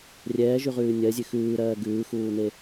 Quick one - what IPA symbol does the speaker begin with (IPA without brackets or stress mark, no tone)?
rʲ